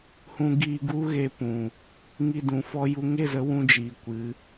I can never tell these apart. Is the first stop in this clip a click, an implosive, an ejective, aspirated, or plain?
plain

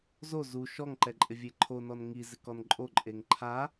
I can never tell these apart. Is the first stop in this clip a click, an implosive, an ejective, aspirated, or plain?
click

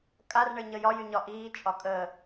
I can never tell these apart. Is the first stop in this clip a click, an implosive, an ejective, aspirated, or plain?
ejective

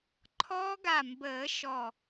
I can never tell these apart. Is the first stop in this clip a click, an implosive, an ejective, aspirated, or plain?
click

